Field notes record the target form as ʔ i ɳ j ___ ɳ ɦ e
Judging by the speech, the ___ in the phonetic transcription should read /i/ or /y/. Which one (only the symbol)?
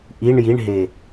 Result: i